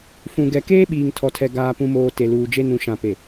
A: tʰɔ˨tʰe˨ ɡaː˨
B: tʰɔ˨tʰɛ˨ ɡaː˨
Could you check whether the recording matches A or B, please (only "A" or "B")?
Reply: B